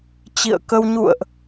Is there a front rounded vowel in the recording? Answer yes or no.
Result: no